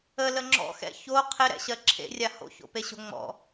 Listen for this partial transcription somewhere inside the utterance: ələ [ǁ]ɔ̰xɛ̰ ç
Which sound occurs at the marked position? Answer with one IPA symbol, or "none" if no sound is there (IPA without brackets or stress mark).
ŋ͡ǁ